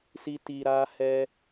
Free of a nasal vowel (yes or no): yes